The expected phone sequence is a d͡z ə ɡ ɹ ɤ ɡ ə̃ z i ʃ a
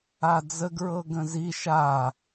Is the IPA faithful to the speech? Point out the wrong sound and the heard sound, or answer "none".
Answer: none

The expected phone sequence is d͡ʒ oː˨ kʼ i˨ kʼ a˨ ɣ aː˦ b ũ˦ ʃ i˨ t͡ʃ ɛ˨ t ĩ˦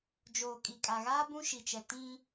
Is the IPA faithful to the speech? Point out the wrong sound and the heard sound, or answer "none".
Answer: none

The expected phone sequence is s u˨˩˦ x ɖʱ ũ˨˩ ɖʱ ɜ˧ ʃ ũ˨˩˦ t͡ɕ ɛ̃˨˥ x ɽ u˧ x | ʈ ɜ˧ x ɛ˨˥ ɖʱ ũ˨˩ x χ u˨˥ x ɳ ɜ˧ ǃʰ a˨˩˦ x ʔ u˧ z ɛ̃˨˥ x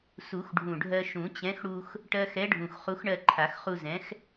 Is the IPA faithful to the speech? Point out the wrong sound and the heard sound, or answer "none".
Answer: ʔ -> χ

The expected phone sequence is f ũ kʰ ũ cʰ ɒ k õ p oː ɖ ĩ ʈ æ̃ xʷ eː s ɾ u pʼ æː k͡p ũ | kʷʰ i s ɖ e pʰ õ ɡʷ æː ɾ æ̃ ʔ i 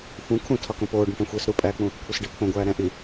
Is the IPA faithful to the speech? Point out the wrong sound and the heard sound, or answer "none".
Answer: cʰ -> tʰ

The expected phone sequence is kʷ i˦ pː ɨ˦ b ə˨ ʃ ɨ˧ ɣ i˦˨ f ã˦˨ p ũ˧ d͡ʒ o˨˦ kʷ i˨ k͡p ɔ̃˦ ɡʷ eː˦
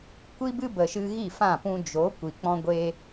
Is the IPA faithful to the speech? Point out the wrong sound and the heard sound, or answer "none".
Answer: pː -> b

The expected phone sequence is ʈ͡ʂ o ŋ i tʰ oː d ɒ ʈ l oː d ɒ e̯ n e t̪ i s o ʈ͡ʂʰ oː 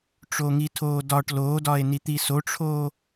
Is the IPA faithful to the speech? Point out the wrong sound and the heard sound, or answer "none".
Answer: e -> i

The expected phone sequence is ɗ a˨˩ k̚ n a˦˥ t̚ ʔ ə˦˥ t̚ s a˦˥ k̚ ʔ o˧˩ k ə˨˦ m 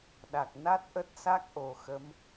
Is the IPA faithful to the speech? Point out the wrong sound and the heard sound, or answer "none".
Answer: k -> x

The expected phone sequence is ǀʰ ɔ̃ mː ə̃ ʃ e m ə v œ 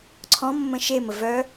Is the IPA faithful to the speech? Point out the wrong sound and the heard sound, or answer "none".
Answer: none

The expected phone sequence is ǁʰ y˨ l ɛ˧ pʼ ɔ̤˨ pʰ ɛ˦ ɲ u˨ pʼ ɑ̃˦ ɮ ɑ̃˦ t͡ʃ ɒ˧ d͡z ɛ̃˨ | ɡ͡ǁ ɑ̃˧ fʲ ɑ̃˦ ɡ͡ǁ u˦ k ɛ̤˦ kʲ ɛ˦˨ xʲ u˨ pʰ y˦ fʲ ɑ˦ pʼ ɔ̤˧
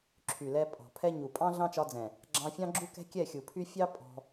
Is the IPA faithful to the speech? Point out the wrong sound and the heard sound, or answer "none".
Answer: none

